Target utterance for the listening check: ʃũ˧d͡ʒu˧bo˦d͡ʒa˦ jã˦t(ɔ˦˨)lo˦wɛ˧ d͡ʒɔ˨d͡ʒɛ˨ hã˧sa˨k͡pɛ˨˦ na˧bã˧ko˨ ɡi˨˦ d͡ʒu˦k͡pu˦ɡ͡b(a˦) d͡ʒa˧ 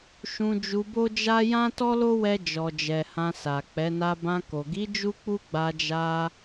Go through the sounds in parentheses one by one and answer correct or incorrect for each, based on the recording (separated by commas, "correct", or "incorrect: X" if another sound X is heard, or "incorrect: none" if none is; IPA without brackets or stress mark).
incorrect: ɔ˦, incorrect: a˧